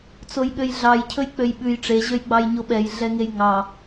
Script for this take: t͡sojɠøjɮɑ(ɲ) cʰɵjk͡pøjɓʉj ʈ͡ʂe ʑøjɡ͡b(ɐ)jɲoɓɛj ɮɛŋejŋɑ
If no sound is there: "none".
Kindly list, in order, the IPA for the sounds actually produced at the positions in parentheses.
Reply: j, ɑ

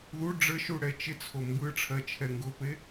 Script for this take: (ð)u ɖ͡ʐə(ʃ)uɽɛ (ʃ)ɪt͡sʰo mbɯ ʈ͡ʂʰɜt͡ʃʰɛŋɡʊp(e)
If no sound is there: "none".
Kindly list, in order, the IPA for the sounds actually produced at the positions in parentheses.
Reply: ð, ʃ, t͡ʃ, e

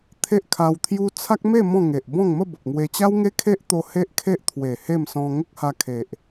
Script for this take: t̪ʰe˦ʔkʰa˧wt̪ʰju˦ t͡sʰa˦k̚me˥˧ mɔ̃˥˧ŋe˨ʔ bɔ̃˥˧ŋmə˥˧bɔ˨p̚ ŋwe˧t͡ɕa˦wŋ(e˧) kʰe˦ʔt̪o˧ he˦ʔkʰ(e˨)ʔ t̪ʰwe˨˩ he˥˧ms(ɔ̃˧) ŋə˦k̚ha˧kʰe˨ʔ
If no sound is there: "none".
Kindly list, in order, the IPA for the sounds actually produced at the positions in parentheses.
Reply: e˦, e˦, ɔ̃˧

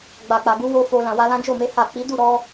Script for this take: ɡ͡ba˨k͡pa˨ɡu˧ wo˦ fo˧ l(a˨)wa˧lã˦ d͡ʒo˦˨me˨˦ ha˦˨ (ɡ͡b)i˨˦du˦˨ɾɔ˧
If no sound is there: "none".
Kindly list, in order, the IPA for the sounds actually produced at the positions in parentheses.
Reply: ã˨, k͡p

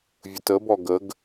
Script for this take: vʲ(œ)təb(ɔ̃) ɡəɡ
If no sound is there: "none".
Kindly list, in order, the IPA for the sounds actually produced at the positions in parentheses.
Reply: ə, ɔ

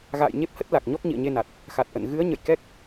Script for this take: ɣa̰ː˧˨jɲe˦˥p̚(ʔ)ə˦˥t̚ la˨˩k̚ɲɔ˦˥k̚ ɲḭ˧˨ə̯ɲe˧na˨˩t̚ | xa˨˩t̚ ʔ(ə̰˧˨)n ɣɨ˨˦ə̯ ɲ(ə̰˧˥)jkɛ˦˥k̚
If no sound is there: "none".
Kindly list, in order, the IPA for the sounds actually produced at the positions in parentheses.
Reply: h, ə̰˧˨, ə̰˧˨

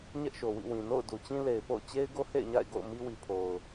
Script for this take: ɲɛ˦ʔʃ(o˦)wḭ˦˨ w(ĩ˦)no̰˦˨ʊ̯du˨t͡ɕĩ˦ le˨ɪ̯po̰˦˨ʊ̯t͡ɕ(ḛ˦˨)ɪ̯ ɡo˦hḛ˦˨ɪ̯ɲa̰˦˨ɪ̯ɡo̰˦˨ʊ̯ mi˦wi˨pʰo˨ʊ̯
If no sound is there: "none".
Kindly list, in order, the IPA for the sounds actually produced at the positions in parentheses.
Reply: o˨, ĩ˨, e˦

